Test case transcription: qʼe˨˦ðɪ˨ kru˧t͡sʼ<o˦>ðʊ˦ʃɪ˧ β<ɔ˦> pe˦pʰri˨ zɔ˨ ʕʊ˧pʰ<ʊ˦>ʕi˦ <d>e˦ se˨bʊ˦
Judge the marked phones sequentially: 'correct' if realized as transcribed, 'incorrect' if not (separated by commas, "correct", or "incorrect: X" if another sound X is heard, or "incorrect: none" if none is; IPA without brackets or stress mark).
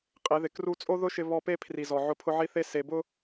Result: correct, correct, correct, incorrect: θ